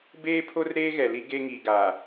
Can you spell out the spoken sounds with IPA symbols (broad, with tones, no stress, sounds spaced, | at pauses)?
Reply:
b eː˦ pʰ o˦ r ɾ eː˦ ɣ ɛ˨ l i˦ ɡ e˦ ŋ i˨ ɡ a˨